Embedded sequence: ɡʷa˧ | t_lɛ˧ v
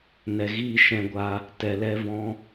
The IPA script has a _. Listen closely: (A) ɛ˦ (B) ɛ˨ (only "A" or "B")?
B